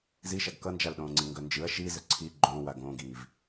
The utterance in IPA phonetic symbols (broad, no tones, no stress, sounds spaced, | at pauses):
z i ʃ a ɡ k ʌ n d͡ʒ a l ɗ õː ŋ͡ǀ i ŋ ɡ œ n d͡ʒ ɯ ɐ̯ ʃ i z ə ǀʰ i ɡ͡ǃ õ w a ɡ õː ɡ iː v